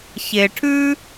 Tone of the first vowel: low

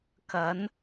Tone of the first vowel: rising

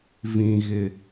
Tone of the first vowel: low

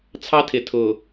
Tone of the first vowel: high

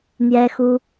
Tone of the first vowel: high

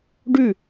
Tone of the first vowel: falling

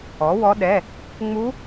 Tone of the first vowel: rising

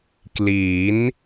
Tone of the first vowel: rising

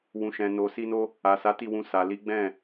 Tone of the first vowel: low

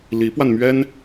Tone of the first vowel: rising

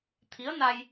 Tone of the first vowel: rising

